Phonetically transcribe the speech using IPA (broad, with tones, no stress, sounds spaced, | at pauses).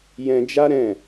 j ɛ̃˧ d͡ʒ a˦ ɾ ɛ̃˦˨